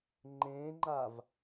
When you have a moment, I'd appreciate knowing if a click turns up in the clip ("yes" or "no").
yes